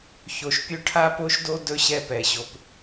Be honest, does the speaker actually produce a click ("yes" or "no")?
no